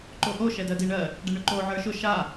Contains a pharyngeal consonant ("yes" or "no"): yes